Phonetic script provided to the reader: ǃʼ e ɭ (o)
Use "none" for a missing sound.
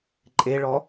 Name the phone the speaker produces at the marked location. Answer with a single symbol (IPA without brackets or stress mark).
ɔ